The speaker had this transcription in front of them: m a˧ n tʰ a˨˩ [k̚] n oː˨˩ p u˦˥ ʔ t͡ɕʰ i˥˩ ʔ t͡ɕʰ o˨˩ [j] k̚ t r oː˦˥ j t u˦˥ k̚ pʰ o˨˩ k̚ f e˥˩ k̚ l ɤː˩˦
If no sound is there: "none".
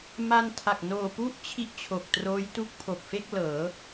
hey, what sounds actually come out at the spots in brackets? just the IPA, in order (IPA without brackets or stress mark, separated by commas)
k̚, none